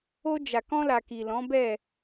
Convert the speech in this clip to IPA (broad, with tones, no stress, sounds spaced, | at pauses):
o˧ d͡ʒ a˨ k ɔ̃˧ l a˨ k i˨ l ɔ̃˨˦ b ɛ˦˨